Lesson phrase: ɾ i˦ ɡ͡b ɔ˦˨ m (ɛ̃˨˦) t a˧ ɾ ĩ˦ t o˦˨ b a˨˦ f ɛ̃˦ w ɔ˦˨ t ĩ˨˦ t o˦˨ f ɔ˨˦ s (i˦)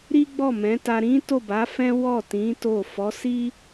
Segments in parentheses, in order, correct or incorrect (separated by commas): correct, correct